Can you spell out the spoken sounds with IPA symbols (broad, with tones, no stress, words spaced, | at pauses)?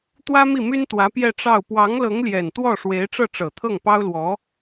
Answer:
t̪wä˥mi˥˩my˥nt̪wä˧˥ pjɛ˥˧ʈ͡ʂɑ˥˩ʊ̯ pwɑ˧˥ŋlɤ˧˥ŋljɛ˨˩n t̪wɔ˥˩ʂwe˧˥ɪ̯ ʈ͡ʂɤ˥˩ʈ͡ʂɤ˨˩t̪ʰɤ˥˩ŋ pɑ˥ʊ̯lwɔ˧˥